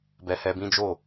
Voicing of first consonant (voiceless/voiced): voiced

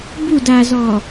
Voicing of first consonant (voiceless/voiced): voiced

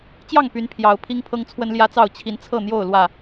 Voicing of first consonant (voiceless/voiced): voiceless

